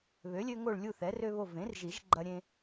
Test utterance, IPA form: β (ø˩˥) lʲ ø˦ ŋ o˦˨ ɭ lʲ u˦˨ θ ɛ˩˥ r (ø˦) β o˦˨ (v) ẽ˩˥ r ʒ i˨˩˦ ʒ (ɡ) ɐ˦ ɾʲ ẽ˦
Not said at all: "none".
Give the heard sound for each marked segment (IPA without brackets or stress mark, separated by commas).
ø˩˥, ø˦, v, ɡ͡ǃ